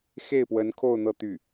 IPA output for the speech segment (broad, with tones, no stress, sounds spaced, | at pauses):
x e˥˩ ɪ̯ p w ə˧˥ n kʰ o˥˧ ʊ̯ n̪ ɤ˥˧ t̪ y˥˩